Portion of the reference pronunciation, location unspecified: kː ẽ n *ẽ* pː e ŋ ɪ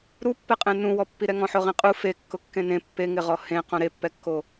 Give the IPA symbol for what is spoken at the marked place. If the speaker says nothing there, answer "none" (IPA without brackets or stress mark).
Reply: ẽ